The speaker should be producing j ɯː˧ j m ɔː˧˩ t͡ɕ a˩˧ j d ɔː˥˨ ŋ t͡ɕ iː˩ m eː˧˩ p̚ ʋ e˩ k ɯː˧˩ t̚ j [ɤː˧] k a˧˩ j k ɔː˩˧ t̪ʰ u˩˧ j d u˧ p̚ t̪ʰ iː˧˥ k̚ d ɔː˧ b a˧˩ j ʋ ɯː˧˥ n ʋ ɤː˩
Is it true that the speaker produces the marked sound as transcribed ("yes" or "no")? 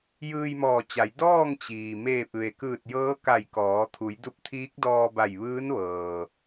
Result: no